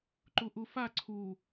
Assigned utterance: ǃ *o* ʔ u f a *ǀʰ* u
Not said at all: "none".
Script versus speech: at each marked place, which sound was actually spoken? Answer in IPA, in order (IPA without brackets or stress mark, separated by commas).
u, ǀʰ